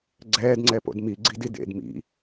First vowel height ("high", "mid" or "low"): mid